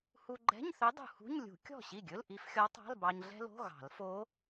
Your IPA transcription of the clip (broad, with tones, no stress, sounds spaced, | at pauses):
h u˧ ɡ͡ǃ ɛ̤˧˥˧ ɲ θ ɵ˧˥ dˤ ṳ˧ h ṳ˧˥˧ ɲ lʲ ṳ˨˩˦ kʲ ɔ̤˥˩ ɕ i˥˩ ɡʲ ɵ˧˥˧ l ʔ i˧˥ f xʲ ɔ˧˥ tˤ ɑ̤˧˥˧ l b ɑ˧ ɲ ɮ ɛ̤˥ l o̤˧˥˧ ɣ ɑ̤˨˩˦ l f o˧˥